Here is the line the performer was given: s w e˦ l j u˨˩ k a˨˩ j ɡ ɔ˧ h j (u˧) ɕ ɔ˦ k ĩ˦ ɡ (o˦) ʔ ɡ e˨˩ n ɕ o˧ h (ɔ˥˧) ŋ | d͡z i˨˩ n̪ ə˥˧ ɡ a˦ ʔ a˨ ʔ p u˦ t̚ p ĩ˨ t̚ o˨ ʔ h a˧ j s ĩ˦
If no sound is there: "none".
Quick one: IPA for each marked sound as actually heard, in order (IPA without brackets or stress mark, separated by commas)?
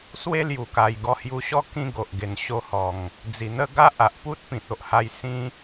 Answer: u˧, o˨, ɔ˨˩